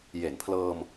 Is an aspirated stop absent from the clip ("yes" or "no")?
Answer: no